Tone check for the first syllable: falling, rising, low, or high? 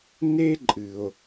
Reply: high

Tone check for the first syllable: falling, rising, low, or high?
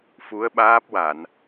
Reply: rising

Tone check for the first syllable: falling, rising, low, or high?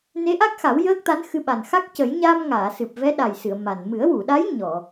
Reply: rising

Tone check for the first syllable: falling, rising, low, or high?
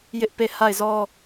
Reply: high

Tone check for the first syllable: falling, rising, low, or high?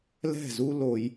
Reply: falling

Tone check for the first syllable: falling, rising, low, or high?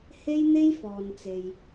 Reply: high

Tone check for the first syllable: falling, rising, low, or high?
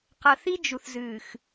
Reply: low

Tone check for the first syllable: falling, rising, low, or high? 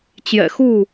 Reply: low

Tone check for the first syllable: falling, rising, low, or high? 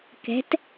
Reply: rising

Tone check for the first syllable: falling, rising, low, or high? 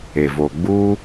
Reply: low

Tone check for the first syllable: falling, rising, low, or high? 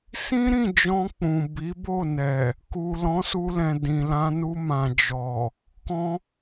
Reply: high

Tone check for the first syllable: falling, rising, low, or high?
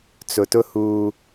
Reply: low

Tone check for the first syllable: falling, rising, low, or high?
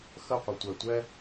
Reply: falling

